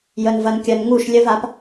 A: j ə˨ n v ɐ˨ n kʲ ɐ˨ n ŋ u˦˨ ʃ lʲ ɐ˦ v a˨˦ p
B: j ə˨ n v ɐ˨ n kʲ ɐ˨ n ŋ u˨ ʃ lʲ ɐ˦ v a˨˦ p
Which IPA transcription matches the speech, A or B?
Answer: A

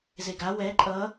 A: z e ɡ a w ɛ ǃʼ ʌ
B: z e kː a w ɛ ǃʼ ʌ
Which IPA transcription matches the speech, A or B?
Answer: A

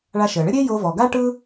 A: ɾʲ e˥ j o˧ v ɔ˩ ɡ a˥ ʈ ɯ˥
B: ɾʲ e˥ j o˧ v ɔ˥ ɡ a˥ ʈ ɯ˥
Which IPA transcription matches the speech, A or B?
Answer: A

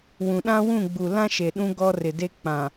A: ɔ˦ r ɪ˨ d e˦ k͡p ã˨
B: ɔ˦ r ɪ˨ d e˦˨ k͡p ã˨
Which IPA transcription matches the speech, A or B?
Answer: A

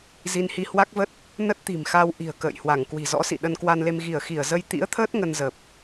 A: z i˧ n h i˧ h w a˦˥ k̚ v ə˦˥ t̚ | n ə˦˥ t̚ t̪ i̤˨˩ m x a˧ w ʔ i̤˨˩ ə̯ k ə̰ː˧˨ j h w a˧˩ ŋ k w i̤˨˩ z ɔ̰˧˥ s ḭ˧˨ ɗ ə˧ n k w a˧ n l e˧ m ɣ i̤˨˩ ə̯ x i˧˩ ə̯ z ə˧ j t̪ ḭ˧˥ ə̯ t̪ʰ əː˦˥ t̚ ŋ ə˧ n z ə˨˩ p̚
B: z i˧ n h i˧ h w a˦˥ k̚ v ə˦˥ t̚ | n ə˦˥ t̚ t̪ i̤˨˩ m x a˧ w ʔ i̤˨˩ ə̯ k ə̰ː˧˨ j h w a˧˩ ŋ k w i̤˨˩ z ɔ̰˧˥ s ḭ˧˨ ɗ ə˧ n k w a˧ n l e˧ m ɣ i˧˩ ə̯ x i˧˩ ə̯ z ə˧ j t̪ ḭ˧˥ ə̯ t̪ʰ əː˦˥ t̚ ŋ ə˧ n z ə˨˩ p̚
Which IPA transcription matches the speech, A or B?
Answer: B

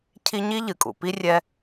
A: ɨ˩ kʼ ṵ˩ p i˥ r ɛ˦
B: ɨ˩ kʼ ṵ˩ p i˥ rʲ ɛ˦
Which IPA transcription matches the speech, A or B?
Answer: B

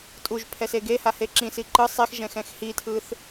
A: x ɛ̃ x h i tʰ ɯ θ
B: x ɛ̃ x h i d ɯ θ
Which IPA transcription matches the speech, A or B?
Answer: A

